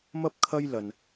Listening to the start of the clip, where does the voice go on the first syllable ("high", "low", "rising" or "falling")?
high